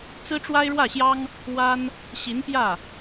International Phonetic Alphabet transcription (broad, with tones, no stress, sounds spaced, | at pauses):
t͡s ɹ̩˥ ʈ͡ʂ w a˥ ɪ̯ ɻ w ä˥˩ ɕ j ɑ˥ ŋ | w a˥ n | ɕ i˧˥ n p j ä˥˩